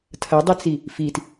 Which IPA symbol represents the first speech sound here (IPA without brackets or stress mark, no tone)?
tʰ